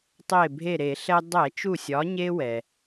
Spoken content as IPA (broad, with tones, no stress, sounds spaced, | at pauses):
tˤ e˧˩ bʱ e˧˩ ɾ e˧˩˧ ɬ ɛ˧ dˤ ɛ˧˩˧ t͡ʃ u˧˩ sʲ ɒ˩˧ ɲ e˧ w ɛ˩